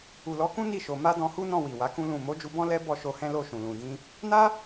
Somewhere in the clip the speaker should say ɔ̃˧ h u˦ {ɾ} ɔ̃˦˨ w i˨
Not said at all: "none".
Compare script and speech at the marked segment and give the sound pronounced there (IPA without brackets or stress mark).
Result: n